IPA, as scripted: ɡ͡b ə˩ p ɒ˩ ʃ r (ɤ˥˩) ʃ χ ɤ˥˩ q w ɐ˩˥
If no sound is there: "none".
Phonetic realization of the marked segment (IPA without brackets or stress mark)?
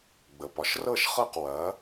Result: ɤ˥˩